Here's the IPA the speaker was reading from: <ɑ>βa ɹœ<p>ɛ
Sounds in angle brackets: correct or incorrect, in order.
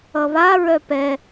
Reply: incorrect, correct

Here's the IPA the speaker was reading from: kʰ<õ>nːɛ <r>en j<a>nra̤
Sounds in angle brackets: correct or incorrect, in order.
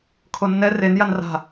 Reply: incorrect, correct, correct

